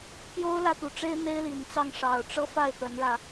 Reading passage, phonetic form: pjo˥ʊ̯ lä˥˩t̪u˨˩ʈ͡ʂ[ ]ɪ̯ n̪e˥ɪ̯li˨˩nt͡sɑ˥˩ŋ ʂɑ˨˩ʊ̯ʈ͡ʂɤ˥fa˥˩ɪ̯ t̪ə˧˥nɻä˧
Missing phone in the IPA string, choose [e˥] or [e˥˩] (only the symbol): e˥